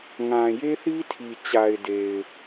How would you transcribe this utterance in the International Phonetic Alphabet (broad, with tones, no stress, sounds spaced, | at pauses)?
ŋ ã˨ j e˦ θ i˦ tʰ i˨ t͡ɕ a˨ ɪ̯ d e˨ ɪ̯